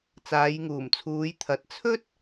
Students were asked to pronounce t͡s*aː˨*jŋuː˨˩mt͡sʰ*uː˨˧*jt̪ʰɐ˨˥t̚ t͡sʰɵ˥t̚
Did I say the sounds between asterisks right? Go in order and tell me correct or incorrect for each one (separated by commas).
incorrect, correct